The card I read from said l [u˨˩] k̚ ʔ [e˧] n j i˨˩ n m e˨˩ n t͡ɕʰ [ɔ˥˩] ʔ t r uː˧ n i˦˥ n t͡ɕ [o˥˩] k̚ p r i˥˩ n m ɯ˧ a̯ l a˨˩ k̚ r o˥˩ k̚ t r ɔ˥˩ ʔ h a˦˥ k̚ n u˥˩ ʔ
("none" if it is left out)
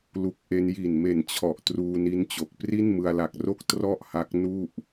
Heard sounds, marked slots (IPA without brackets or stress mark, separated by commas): u˦˥, e˧, ɔ˨˩, o˨˩